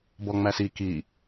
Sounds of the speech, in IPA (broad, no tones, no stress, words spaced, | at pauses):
bɔŋ͡mæsi ki